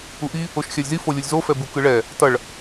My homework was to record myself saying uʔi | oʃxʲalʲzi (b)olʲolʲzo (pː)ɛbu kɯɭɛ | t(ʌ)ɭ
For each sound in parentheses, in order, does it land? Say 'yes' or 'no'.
no, no, yes

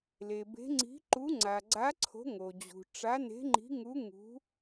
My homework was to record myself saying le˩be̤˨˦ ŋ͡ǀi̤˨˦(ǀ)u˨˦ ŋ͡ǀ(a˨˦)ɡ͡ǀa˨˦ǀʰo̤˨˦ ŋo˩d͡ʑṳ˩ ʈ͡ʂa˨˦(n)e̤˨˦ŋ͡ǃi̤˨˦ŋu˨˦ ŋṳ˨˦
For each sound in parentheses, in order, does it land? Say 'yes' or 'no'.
no, no, yes

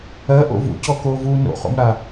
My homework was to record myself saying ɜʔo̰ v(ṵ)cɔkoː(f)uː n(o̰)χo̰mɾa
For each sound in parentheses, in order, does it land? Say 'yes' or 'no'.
yes, no, yes

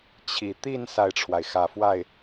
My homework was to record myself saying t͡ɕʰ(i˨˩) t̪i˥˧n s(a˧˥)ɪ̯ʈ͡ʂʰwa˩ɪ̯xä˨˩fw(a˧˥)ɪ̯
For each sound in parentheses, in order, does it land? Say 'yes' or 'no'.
yes, no, no

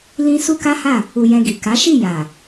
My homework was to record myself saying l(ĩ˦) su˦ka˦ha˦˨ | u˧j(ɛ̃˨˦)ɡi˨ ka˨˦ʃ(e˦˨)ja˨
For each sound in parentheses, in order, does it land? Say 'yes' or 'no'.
no, no, no

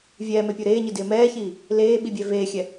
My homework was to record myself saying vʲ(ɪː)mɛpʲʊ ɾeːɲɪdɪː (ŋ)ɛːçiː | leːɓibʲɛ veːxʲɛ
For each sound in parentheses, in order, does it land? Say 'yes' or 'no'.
no, no

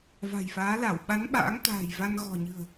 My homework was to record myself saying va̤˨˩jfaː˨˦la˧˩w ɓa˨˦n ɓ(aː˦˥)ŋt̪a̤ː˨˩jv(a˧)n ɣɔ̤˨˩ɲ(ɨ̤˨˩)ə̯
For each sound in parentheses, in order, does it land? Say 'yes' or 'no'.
no, yes, yes

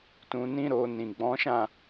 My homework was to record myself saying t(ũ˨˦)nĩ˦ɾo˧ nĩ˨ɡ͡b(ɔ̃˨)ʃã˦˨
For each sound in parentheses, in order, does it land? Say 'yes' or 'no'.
no, no

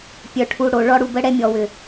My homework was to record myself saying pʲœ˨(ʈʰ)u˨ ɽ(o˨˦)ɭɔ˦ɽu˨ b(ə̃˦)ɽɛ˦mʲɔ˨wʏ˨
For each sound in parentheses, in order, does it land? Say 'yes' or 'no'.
yes, no, no

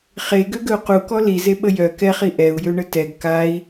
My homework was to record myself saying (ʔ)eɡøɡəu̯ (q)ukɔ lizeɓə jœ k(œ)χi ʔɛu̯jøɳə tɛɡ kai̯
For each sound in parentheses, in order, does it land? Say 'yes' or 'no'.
no, yes, no

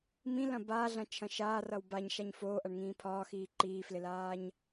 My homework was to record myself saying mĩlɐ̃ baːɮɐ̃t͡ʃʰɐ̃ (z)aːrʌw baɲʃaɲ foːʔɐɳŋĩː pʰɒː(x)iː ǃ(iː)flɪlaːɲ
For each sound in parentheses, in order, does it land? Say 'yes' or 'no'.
no, yes, yes

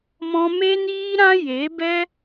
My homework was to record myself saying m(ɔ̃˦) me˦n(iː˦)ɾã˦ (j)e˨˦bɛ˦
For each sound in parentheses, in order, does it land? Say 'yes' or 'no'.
yes, yes, yes

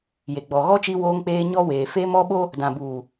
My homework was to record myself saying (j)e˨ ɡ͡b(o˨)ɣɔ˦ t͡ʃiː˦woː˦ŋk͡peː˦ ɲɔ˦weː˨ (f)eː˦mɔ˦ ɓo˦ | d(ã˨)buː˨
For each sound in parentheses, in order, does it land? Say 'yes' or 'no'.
yes, no, yes, yes

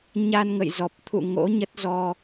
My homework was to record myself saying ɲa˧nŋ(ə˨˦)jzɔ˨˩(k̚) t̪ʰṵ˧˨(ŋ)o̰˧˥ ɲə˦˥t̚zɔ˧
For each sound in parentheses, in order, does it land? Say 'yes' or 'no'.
no, no, yes

